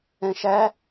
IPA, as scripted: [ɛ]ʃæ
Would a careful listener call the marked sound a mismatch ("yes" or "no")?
yes